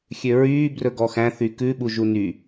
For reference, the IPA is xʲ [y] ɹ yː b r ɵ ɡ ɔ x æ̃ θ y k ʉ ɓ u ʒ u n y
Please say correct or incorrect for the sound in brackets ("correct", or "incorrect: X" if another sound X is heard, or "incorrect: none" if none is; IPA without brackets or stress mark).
incorrect: ø